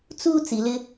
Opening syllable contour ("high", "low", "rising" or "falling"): high